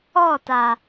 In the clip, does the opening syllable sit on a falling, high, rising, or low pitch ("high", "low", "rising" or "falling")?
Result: falling